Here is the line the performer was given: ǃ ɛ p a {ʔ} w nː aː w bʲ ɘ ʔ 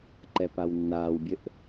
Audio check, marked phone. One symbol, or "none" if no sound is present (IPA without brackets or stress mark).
none